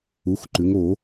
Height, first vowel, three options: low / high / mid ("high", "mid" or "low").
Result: high